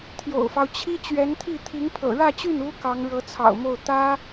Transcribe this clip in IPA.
t̪ʰ j o̰˨˩ ʊ̯ f ɑ˦ ʊ̯ t͡ɕʰ i˥ t͡ɕ ɥ ɛ˧˥ n t̪ʰ i˥˩ t̪ʰ i˧˥ ŋ pʰ ɤ̰˨˩ ɻ ä˥˧ t͡ɕ y˥˩ n u˥ k ɑ˧˥ ŋ ɻ ɤ˧˥ t͡sʰ ɑ̰˨˩ ʊ̯ m o˥˩ ʊ̯ t̪ ä˥

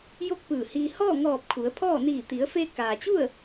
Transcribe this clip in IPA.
j o˥˨ k̚ p ɯː˧˩ h iː˧ h ɔː˥˨ ŋ ɔː˧˩ p̚ kʰ u˩˧ ə̯ pʰ ɔː˥˨ n iː˧˩ t̪ i˩˧ ə̯ f eː˧ k aː˩ t͡ɕ u˥˨ ə̯

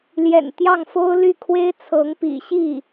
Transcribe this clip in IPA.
l j ɛ̰˨˩ n t̪ j ɑ˥˩ ŋ f o˥ ʊ̯ l y˥˩ kʰ w e˥ ɪ̯ t͡sʰ ɤ˧˥ ŋ p ḭ˨˩ ɕ i˥˩

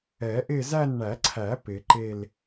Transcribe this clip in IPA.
ɛ˨˩˦ ʔ ɪ˦˨ z æ˦˨ n ɳ æ˨˩˦ ǀʰ æ˨˩˦ p ɪ˨˩˦ ǃ e˦˨ l

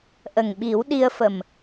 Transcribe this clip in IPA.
ʔ ə˨˩ ŋ ɓ i˨˩˦ w ɗ i˧ ə̯ f ə˨˩ m

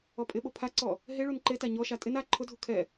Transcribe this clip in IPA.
ɔ pʼ ɪ ɓ o pʰ a ǀ ɔ | ɦ e ɭ u n ǃ e t a ɲ ɔ ʃ a tʼ ɪ n a ǃʰ ʊ dʱ u kʰ ɛ

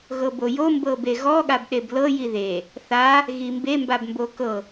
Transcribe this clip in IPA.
ɣ ɤ b o j o m b ɤ b e ɣ ɔ ɠ a b ɗ e b l ɤ j i ð e | θ a | ɣ i m b e m b a b m b o k ɤ

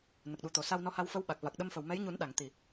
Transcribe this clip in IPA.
n ə˨˩ k̚ ɗ u˨˩ t̪ o˨˩ s a˧ w n ɔ˧ h a˧ w f ə˧˥ w ɓ a˨˩ k̚ v a˨˩ k̚ ɗ ə˧ m f ə˨˩ w m ɛ˧˥ j ɲ u˨˩˦ n ɗ a˨˩˨ ŋ t̪ i˨˩

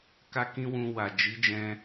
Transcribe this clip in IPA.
k a˦ k ĩ˦ w ũ˧ w a˨ d͡ʒ i˨˦ d͡ʒ ɛ̃˧

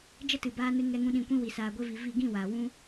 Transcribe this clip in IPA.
d͡ʒ ə˦ t ɨ˨ b aː˧ n ɨ˧ ŋ ɛ˧ ŋ ũ˧ ɗ ĩ˨ kʷ ĩ˧ w i˨ s aː˨ ɡʷ e˧ v i˨ v i˦˨ ɡ ĩ˦˨ w aː˨ w ũ˦

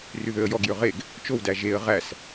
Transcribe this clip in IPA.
r y ð ø ə̯ j ɔ ɡ j ø ʁ e ɡ | t͡ʃ o w d æ ʒ e ə̯ ʁ æ s

